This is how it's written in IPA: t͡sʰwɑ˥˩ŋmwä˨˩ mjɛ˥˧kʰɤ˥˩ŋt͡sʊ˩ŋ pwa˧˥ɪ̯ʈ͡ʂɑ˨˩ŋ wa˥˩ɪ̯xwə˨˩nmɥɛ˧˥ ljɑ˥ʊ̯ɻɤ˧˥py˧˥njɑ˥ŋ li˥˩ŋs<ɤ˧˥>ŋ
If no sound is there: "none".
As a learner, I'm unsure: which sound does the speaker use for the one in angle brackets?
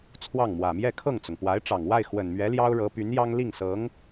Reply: ɤ˧˥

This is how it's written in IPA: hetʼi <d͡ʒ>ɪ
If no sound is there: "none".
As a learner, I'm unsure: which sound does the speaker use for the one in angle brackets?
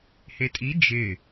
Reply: d͡ʒ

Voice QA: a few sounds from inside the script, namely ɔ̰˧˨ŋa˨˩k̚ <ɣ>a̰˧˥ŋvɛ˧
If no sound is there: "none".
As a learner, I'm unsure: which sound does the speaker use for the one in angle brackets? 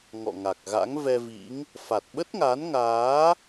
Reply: ɣ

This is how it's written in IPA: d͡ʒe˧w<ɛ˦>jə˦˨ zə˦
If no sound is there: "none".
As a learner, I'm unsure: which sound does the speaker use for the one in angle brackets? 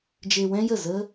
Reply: ɛ̃˦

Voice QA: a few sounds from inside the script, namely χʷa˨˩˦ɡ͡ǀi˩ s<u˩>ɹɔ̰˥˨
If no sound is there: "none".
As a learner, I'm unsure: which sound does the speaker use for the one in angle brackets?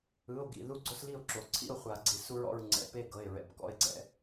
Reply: u˦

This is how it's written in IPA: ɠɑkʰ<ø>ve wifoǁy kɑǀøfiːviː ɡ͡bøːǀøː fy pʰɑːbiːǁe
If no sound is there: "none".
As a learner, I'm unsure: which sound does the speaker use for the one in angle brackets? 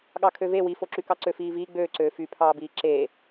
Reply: ø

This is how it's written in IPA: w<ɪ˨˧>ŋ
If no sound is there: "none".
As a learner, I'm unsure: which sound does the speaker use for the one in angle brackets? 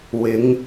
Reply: ɪ˨˧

